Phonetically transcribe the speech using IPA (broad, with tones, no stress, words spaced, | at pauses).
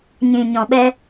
ɲĩ˨ ɲɔ̃˨ɓɛ˦